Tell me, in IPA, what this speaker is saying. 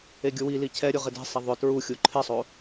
e ɡʲ ʊ w i l i cʰ ɛ ɾʲ ʊ ʁ ɪ d e̤ sˤ ɛ ðˤ ʊ t ɹ u xʲ u ǃʰ ɪ sˤ o

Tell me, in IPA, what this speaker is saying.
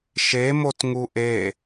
ʃ e m o t ŋ u ʔ e

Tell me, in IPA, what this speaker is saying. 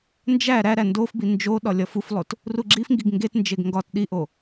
n d͡ʒ æ ɾ æ ɾ æ n d o f b i n d͡ʒ o ɗ ɒ lʲ ɒ f u f lˠ o t | r u ɡ͡ǁ i f ŋ ɡ i ɡ ŋ ɡ e t n d͡ʒ e ɡ ŋ ɡ ɒ t ɗ i ʔ o

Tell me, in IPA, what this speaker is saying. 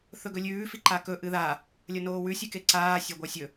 θ ɵ ɡ ɵ lʲ ʉː f i ǃ a k ɵ ʔ ɨ ð a | lʲ ɐ n oː w ʉ sʲ ʉ k e ǀ aː sʲ a ɡʷ a sʲ ɵ

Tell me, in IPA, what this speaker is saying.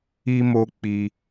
i˧ m o˧ k͡p i˧

